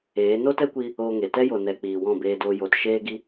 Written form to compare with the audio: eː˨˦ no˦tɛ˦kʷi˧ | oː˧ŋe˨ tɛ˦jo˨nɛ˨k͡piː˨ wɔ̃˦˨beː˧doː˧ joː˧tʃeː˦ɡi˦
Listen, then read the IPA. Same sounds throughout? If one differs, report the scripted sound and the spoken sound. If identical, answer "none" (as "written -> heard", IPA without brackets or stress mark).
none